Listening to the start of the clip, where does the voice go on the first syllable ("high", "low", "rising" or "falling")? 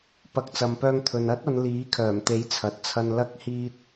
rising